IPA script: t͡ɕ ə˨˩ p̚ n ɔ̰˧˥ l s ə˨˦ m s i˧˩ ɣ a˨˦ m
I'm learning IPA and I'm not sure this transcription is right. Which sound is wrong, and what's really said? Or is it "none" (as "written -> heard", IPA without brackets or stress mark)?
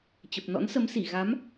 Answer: l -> n